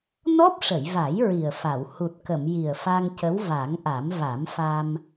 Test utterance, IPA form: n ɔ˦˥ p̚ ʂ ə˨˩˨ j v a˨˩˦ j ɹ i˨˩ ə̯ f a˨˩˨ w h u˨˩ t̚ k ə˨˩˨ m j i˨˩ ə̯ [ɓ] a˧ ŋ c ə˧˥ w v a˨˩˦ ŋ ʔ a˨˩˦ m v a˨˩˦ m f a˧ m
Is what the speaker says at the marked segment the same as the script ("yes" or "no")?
no